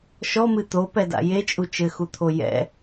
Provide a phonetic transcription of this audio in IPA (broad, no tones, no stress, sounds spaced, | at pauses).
ʃ ɔ m ɨ t̪ o p ɛ d a̰ j e t͡ʃʼ u t͡ʃ ɘ x u t̪ʰ o j ɛ̰